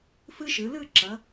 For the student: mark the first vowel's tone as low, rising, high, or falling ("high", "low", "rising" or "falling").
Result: high